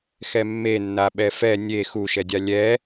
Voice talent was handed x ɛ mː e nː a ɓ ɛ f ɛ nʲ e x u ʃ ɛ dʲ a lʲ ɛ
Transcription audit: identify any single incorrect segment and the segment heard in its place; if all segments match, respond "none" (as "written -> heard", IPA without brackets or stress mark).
none